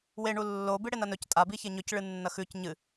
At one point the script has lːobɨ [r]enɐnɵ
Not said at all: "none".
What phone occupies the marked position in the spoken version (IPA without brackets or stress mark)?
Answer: ɽ